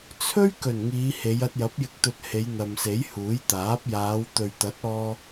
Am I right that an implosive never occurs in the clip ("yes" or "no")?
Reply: yes